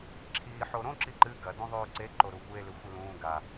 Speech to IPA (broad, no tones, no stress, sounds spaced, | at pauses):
ǁʰ iː ħ o ɾ õ ǁ i ǃ ɨ ɡ ɐ d ũ ðˤ ʉː ǀ e ǃ o ɾ u kʷ e l ʉ xʷ ɨ l ũː ɡ a